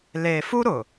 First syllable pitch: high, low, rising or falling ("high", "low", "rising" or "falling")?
low